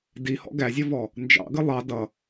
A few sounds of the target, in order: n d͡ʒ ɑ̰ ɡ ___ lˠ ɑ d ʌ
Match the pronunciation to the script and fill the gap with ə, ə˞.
ə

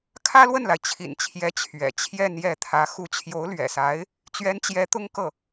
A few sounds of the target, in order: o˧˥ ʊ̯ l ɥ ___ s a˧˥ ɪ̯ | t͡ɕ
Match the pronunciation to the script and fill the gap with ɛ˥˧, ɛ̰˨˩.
ɛ̰˨˩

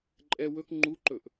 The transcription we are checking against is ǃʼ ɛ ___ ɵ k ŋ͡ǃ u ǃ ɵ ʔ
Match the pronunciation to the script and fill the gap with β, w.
w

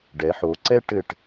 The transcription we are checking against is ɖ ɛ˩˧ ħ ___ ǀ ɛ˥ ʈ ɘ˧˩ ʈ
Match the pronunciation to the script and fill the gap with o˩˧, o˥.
o˩˧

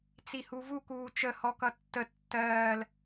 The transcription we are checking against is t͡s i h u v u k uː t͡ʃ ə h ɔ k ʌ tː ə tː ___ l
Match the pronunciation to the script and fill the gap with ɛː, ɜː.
ɜː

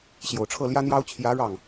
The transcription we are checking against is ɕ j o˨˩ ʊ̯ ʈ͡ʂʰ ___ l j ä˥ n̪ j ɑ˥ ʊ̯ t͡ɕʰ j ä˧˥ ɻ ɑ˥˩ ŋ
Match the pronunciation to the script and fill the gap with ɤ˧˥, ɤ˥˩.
ɤ˥˩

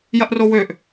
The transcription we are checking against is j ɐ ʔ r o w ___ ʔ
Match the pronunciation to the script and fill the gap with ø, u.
ø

